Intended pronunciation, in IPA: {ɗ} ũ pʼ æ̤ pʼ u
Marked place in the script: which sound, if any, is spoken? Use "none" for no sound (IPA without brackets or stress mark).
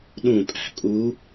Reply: ɗ